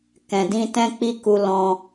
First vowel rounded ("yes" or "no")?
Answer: no